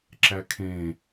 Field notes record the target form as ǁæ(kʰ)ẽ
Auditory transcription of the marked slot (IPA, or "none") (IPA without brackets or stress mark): kʰ